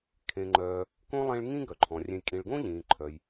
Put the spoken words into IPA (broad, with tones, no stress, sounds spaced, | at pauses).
kʰ ẽ˨ ŋ͡ǃ œː˨ | k õ˥ lˠ ẽ˦ ɭ ŋ ĩ˦ ɡ œ˩ ǃʰ ɔ̃˩ rʲ ẽ˨ j kʼ ĩ˨ ɭ ɡ õ˥ ʎ ĩː˩ ǃʰ œ˩ j